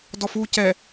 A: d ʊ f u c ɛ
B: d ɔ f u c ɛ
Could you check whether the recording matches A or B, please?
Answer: B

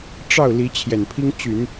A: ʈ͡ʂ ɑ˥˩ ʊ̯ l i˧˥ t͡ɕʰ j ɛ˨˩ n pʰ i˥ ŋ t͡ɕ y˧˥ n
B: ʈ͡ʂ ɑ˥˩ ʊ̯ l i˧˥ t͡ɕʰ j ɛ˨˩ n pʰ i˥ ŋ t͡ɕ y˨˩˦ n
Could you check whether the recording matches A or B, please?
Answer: B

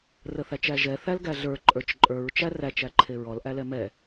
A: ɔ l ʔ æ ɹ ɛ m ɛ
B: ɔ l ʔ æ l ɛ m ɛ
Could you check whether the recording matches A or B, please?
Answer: B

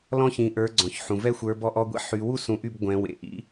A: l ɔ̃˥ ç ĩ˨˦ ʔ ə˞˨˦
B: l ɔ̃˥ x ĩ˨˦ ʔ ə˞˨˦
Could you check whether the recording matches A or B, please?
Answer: A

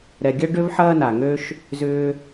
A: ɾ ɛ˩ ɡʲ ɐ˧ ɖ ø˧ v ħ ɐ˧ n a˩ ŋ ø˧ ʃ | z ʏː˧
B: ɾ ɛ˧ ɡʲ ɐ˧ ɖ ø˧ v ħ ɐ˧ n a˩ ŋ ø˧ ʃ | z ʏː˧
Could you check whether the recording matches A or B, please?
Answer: A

